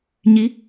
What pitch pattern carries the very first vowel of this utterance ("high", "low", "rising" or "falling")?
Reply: rising